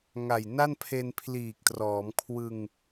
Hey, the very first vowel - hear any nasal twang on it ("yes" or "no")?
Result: no